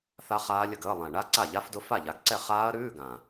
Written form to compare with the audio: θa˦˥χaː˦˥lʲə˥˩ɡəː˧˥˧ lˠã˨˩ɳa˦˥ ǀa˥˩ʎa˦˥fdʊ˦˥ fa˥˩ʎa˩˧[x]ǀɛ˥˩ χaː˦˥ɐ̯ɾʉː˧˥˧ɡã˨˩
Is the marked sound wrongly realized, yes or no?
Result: yes